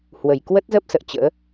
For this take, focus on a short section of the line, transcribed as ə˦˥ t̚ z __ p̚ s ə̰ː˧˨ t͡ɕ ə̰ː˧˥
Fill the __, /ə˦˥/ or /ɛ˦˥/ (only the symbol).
ə˦˥